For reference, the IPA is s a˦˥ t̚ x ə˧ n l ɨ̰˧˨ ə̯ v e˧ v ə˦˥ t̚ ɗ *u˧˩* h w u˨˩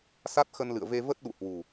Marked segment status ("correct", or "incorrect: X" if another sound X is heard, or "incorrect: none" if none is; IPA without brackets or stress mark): incorrect: ṵ˧˨